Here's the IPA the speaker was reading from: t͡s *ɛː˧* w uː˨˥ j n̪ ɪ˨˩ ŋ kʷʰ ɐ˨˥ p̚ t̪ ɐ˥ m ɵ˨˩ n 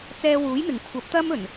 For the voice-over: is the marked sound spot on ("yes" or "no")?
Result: yes